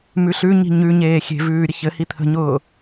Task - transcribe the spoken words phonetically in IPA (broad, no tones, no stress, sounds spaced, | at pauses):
m ʉ ɬ ʉ ɲ i̤ ɲ ʉ ɲ eː xʲ e̤ v ʉː ɾʲ ə ç ɘ h i t̪ʰ ə̤ ɲ ʊː